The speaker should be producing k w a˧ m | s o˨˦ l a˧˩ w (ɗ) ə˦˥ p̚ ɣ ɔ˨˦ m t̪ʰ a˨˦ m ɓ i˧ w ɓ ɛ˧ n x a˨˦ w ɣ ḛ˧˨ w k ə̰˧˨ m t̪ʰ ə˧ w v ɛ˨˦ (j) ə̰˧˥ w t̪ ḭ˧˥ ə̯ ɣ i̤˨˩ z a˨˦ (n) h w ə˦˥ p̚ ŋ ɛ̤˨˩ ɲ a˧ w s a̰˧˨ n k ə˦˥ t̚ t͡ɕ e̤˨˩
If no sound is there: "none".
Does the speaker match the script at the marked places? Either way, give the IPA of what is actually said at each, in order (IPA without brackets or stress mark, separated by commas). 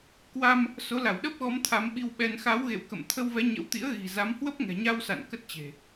ɗ, ɲ, m